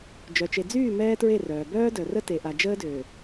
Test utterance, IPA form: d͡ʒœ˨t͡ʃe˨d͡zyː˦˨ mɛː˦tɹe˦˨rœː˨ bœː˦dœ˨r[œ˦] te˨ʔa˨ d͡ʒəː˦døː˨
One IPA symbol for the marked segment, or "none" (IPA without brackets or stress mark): ə˦